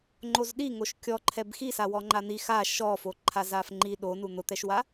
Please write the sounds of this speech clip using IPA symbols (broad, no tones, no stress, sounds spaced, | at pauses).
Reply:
ŋ͡ǃ o z ɗ i ŋ o ʃ kʲ ɔ ǃʰ ɛ b x i s a w ɔ ŋ͡ǃ a n̪ i x a ʃ ɔ f o ǃʰ a z a f ŋ͡ǃ i ɗ o n u n̪ ʊ t̪ ɛ ʃ w a